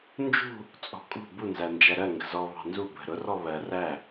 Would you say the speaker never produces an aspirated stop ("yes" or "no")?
yes